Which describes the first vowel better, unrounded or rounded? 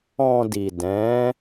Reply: rounded